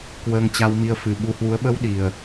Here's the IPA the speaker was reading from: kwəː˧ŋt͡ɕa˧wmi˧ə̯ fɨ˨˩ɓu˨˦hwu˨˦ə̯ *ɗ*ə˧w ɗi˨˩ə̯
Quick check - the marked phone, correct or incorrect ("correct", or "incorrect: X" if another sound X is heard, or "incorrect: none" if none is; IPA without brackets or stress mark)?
incorrect: ɓ